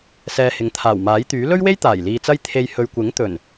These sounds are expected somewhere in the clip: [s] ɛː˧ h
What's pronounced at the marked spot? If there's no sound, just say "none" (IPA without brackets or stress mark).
s